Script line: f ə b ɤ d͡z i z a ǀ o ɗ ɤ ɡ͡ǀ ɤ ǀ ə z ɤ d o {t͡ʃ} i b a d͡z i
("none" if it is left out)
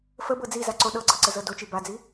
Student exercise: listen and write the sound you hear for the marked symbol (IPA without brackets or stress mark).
t͡ʃ